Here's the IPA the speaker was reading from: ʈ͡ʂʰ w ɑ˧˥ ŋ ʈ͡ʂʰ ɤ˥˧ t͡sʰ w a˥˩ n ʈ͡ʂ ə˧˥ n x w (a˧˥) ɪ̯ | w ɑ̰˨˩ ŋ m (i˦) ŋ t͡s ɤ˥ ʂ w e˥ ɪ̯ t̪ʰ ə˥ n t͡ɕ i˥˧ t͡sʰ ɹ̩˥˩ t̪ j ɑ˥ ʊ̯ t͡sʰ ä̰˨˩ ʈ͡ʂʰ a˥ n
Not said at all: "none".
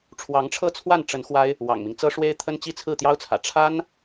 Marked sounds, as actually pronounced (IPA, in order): a˥, i˦

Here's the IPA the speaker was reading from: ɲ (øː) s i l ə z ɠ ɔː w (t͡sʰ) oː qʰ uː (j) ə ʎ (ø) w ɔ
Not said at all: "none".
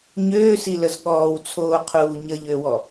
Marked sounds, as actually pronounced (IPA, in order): øː, t͡sʰ, ɲ, ø

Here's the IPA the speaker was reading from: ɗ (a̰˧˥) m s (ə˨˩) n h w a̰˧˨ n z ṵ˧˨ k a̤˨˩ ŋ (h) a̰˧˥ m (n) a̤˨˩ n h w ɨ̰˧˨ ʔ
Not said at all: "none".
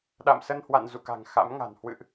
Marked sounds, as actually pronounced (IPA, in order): a̰˧˨, ə˧, x, ŋ

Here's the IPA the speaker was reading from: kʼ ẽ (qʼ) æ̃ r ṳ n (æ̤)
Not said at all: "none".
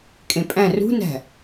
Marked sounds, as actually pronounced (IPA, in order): pʼ, æ̤

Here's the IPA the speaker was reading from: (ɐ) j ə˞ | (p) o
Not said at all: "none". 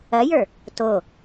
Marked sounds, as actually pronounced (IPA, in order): ɐ, t

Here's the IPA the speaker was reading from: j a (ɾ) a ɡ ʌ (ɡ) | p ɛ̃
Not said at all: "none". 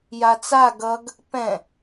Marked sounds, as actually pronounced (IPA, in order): t͡s, ɡ

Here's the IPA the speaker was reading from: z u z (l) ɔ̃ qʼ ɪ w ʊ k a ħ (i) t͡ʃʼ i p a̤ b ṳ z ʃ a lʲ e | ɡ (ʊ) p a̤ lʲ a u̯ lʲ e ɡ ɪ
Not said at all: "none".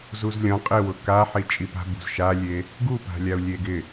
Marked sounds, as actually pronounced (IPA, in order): lʲ, i, u

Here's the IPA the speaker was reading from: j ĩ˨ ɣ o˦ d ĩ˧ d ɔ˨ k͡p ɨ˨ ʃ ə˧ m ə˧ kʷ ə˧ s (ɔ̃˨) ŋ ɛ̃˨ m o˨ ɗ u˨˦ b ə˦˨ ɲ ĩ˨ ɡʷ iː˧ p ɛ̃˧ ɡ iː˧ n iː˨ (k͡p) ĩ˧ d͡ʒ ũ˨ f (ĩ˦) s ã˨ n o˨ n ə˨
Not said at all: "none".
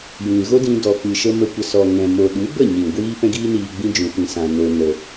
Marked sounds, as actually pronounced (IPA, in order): ɔ˨, ɡ͡b, ĩ˨

